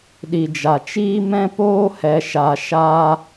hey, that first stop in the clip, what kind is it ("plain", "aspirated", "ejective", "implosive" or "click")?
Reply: implosive